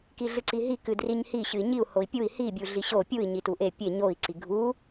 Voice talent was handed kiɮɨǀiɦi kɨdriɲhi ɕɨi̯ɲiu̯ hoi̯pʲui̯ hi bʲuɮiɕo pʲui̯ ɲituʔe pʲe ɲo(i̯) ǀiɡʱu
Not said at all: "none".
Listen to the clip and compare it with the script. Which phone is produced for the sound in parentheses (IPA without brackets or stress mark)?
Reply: i̯